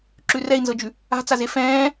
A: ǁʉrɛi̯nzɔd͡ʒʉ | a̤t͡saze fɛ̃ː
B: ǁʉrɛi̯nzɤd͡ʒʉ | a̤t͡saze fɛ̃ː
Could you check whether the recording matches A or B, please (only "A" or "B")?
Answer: B